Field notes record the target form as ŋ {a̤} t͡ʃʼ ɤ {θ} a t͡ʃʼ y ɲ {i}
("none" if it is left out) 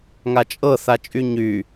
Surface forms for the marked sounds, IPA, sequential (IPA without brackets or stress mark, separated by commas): a, θ, y